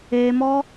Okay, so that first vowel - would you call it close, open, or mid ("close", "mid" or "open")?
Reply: mid